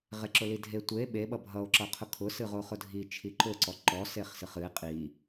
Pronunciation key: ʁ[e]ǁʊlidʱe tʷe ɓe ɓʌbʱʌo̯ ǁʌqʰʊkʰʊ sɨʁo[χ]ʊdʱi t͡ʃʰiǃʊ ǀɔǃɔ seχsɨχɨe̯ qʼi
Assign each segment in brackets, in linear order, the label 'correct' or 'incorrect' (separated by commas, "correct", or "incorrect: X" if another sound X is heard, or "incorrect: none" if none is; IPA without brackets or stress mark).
correct, correct